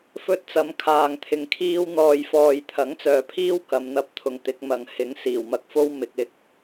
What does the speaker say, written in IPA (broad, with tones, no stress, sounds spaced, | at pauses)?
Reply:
f ɵ˥ t̚ t͡s ɐ˨˥ m kʰ aː˨ ŋ t̪ʰ ɪ˨ ŋ kʰ iː˥ w n̪ ɔː˧ j f ɔː˧ j t̪ʰ ɐ˨˥ ŋ t͡s œː˨ pʰ iː˥ w k ɐ˨˧ m n̪ ɐ˧ p̚ t̪ʰ ʊ˨ ŋ t̪ ɪ˨˥ k̚ m ɐ˨ ŋ h ɪ˨˥ ŋ s iː˨˩ w m ɐ˧ k̚ f o˥ w m ɪ˨ k̚ ɪ˨˥ k̚